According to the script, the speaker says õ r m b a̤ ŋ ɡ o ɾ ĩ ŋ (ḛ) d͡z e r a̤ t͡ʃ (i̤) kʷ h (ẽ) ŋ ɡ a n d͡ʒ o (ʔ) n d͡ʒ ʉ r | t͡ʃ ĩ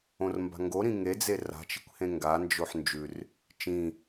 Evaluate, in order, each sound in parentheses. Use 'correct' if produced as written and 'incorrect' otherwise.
incorrect, correct, correct, incorrect

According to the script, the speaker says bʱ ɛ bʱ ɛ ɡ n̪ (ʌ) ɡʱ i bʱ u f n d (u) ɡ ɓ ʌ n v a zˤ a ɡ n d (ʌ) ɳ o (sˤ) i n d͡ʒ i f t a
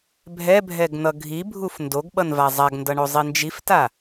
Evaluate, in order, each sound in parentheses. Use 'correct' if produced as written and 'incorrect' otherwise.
correct, incorrect, correct, incorrect

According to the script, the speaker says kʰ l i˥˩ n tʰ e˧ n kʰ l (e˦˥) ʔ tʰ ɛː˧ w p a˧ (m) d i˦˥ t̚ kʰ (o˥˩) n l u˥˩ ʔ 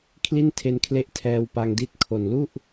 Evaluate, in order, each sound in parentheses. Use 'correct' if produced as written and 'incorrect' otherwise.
correct, incorrect, incorrect

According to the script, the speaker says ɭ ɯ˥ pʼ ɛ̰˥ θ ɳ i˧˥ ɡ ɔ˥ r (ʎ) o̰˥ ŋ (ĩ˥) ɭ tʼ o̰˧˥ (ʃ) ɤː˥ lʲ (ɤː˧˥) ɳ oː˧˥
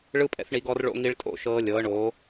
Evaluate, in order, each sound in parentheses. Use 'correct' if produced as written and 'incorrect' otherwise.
incorrect, incorrect, correct, correct

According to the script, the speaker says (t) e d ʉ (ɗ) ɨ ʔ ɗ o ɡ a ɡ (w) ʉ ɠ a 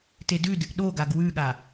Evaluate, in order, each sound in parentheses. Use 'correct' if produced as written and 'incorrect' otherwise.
correct, incorrect, correct

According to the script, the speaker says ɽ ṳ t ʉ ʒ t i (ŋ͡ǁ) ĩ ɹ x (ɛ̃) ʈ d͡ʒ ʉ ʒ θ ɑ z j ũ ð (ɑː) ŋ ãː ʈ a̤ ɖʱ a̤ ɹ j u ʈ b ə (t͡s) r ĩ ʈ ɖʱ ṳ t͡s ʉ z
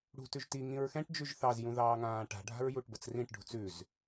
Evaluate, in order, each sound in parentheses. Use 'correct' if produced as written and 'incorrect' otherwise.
incorrect, correct, correct, correct

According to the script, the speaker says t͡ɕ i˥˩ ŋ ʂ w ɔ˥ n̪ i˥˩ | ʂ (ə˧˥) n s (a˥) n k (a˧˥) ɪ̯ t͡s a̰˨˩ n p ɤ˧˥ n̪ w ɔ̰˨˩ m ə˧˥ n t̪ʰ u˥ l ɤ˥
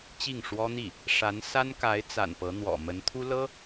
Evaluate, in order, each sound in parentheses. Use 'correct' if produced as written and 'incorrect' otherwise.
incorrect, correct, correct

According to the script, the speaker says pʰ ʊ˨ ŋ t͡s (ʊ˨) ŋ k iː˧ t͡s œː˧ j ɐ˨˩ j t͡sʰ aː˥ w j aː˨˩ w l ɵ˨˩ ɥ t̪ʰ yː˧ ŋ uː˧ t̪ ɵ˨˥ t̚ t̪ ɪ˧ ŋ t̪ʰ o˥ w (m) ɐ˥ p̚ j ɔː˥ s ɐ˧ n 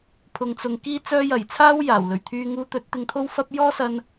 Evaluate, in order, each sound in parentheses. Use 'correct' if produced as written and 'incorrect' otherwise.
correct, incorrect

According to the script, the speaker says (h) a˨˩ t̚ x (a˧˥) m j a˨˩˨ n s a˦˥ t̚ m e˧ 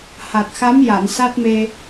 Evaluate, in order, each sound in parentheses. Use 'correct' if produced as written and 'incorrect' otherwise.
correct, correct

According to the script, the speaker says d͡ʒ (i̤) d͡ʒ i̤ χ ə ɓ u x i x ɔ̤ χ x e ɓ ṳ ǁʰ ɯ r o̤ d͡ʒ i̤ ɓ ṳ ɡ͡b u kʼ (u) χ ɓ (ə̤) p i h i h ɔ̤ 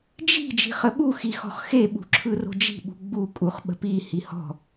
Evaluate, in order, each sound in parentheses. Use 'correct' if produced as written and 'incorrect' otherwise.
correct, correct, correct

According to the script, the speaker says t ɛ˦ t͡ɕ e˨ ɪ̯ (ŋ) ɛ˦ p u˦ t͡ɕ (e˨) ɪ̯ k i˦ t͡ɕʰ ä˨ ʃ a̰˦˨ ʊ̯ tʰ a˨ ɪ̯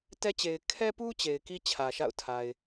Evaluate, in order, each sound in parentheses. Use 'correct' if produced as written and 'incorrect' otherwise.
incorrect, correct

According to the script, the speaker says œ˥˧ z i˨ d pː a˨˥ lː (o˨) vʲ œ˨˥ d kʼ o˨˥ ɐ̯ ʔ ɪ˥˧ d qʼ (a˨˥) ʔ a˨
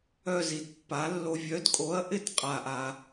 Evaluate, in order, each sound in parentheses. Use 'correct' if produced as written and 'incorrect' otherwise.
correct, incorrect

